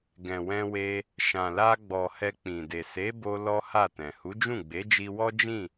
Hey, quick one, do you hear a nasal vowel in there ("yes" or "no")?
yes